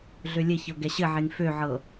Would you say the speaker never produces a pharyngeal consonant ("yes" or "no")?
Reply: no